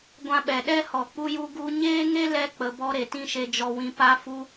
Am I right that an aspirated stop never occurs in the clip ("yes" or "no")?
yes